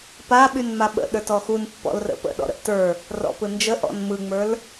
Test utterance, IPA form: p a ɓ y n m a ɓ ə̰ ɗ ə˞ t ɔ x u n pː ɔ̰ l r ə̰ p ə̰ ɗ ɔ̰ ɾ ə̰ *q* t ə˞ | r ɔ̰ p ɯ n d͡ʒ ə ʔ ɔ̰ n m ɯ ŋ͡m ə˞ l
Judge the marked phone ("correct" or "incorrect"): incorrect